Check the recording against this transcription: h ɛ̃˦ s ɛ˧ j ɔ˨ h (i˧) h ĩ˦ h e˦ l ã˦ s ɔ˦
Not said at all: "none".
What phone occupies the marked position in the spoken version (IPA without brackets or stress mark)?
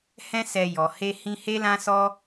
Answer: e˧